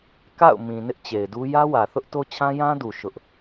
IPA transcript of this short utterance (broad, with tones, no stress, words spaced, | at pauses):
ka̰˦˨ʊ̯mĩ˨ nɪ˦ʔt͡ɕe˨ɪ̯du˦ jä˦wä˨θʊ˦ʔto˦ t͡ɕʰã˦jã˦du˨ ʃʊ˦ʔ